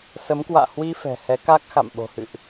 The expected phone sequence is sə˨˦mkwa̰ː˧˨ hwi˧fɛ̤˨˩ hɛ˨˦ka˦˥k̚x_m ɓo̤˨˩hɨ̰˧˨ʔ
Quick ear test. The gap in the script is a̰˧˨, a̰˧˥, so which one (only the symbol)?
a̰˧˨